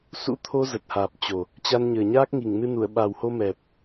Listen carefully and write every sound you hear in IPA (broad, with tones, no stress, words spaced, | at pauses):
sṵ˧˥t̪ʰo˧zə˨˩t̚ haː˨˩p̚t͡ɕo˨˩ | t͡ɕa˧nɲəː˨˩ɲaː˦˥k̚ ŋi˧˩ŋnɨ˧nu˧˩ə̯ ɓa˨˩who˧mɛ˨˩p̚